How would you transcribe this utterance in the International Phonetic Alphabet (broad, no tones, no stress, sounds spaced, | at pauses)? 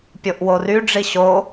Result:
pʲ o ʔ w o r y ɖ͡ʐ i ɕ o